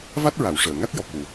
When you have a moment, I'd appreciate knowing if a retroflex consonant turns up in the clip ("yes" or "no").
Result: yes